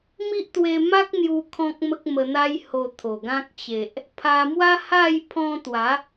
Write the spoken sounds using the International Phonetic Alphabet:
m i˦ ʔ t̪ w e˧ m a˦ k̚ n̪ j u˧ kʰ ɔ̃˦ k̚ m ə˦ k̚ m ə˧ n̪ a˦ j h o˧ t̪ʰ o˨˩ ɡ ã˦ k̚ t͡ɕ e˨ ʔ | pʰ a˧ m w a˦ h a˥˧ j pʰ ɔ̃˧ t̪ w a˨˦

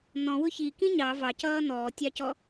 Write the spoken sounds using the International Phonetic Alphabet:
n̪ ɔ̃ w ʊ ç i k ĩ ɲ ɑ v ɑ c ʌː n̪ ɔː tʲ ɑ c ɔ

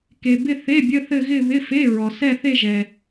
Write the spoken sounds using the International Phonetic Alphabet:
k e˨ b ɪ˥˧ θ e˧˥˧ bʲ ə˧˥˧ θ ɘ˥˧ ɣ ɪ˥˧ β ɪ˧˥˧ f e˧˥˧ ɹ ɔ˨ s ɛ˥˧ θ e˥˧ ʒ ɛ˨

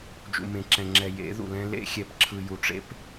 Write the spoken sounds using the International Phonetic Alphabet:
d͡ʒ ṵ˨ m ẽ˨ ǁ ɛ̃˨ ŋ͡ǁ ɛ˨ j ḛ˨˦ ð ṵ˨ l ɛ̃˦ l ḛ˦ xʲ ɛ˨ p ǁʰ ɯ˨ j u˨ ʈ͡ʂ ḛ˦ p

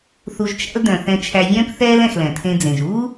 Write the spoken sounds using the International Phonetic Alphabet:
θ u˨ ʒ t͡ʃ æ̰˦ l d œ̃˩ θ ɛ̃˨ t͡ʃʰ æ˨ vʲ œ̃ː˦ p θ ɛː˦ l ɛ̃˨ x l ɛ̃˩ tʰ ẽ˦ d͡z ẽ˩ ʒ uː˥

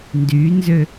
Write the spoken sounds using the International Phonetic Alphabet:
n d y n z ø

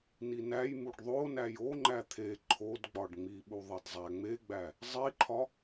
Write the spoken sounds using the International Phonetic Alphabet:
n i n æ j m u ɖ ðˤ o n æ j o ŋ͡ǃ æ t̪ʰ e ǃʰ o d ɡ͡b ɒ ɖ ŋ͡m i ɓ u ðˤ e d zˤ æ ŋ͡m e ɡ͡b æ | zˤ i ǃʰ ɒ

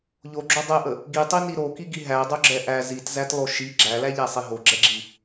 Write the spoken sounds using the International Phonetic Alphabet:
ʎ o ɡ͡ǁ o dˤ ɛ ʔ ə | ɡ i tˤ i n i ɾ o k i ɡ i ɦ æ dˤ o ɡ͡ǁ ɛ ʔ æ z i t z æ t lˠ o ʃ i ɡ͡ǁ æ l æ ʎ æ sˤ i ɦ o ɡ͡ǁ ɛ ɡ͡ǁ i

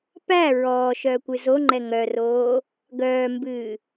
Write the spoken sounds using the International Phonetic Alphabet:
p æ ɹ ɔː ʃ œː kʷ ɨ z o ŋ͡ǃ ɛ ŋ œ r oː | ɡ œː m b ɨː

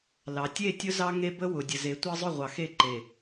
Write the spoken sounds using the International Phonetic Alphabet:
l ɑ˨ tʲ e˦˨ tʲ ʊ˦ z ɑ˦ ŋ e˦ b ə˦ w ʊ˨ dʲ ə˨ z e˨˦ tʷ ɑ˦ zˤ ʊ˦˨ ʁʷ ɑ˨ x e˦˨ ǃ e˨

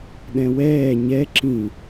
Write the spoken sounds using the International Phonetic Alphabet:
ɗ ɛ̃ w ɛː ɲ ɛ ǁ ĩ

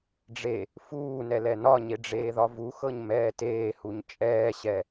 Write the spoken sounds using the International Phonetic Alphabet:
ɖ͡ʐ e | f uː n ɛ l ɛ n ɒ ɲ e ɖ͡ʐ eː ð ɒ v u x ɤ ɲ m ɛː t eː h u ɲ t͡ʃʼ ɛː ɕ ɛ

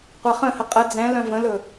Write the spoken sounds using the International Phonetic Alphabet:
qʷ a χ ə̃ h ə qʼ ə d͡z ɛ̃ l œ̃ v ə̃ l ɵ

